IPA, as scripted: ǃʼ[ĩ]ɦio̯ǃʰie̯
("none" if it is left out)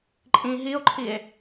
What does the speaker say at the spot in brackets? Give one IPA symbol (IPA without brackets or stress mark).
ĩ